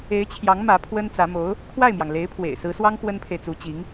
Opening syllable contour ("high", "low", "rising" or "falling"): rising